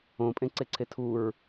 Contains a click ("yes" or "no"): yes